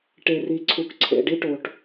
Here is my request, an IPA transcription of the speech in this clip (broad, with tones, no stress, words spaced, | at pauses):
ʈe˨ri˨ ǀʰu˨kǀʰḛ˨ ɖi˦ʈo˨ʈ